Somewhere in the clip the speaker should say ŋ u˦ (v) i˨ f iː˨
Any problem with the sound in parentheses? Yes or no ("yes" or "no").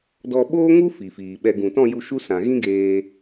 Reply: yes